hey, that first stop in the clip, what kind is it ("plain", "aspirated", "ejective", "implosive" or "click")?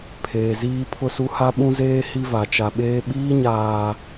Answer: aspirated